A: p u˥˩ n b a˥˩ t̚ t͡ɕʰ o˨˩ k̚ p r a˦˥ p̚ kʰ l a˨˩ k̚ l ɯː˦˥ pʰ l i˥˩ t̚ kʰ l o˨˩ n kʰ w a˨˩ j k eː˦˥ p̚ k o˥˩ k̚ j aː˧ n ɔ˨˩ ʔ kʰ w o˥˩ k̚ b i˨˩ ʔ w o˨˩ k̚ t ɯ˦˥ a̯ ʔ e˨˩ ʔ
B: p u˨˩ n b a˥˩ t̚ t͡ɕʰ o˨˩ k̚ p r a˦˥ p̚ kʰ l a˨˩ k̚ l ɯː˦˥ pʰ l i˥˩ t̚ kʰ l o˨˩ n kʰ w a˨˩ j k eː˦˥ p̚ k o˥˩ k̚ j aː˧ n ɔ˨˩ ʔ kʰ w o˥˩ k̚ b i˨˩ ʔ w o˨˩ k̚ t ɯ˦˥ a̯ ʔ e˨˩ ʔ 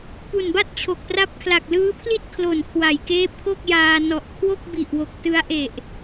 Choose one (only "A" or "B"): B